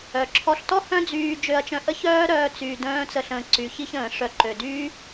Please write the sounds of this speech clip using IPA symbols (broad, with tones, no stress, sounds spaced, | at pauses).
œ˩ ǁʰ ɔ˧ ɬ t ɔ˥ h œ̃˥ d͡z yː˧ d͡ʒ ø˧ ɐ̯ t͡ʃ œ̃˧ ʔ ə˥ ç œː˥ ɾ œː˥ t͡s yː˧ d œ̃ː˥ t͡s ə˧ ɬ ə̃ː˧ ǀ y˩ ç i˥ ç ə̃ː˩ ʂ œ˧ ǃ ø˩ d yː˥